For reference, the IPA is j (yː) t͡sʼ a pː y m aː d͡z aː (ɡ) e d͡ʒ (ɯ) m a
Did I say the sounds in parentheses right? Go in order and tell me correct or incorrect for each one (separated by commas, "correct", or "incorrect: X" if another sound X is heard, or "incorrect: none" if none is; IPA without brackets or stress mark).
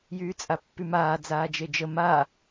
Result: correct, incorrect: d͡ʒ, incorrect: ə